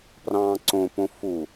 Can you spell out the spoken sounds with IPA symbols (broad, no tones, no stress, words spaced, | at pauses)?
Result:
prɑ̃ːǀõpõ fu